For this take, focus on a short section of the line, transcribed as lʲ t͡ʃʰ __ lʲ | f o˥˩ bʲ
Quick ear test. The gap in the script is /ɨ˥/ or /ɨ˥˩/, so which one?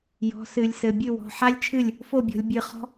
ɨ˥˩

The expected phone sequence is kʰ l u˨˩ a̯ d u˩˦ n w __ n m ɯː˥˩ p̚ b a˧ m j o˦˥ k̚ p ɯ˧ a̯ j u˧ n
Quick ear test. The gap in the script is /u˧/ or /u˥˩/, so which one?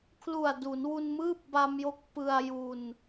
u˧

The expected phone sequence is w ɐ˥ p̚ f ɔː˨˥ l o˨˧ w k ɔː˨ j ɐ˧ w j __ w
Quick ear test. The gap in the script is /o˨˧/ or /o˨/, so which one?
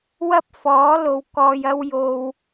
o˨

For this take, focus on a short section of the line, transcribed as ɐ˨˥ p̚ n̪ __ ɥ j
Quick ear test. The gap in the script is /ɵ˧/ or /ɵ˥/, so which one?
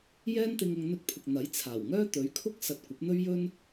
ɵ˥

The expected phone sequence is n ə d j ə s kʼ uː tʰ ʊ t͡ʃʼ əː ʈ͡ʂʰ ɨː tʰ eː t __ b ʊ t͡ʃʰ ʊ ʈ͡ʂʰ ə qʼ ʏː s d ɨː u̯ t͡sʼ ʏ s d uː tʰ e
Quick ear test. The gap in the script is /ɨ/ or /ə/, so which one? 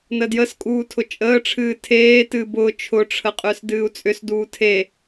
ɨ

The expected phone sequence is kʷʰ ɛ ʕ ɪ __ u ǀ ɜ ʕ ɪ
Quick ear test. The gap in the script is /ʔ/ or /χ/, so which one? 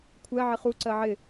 χ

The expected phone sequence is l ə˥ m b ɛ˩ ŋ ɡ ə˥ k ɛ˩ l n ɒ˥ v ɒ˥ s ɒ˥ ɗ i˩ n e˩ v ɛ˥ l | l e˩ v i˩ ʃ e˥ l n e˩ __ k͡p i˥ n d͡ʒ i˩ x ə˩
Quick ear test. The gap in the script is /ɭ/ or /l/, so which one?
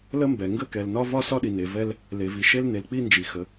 l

